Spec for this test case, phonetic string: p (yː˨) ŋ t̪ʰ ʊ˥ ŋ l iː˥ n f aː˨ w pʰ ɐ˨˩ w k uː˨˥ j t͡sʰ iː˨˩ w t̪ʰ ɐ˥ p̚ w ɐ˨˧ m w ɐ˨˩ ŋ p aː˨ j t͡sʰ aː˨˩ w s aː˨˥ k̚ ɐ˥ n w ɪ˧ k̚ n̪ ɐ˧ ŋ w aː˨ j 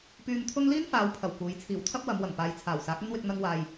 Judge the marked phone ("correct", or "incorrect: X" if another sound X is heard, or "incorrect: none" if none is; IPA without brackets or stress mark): incorrect: yː˧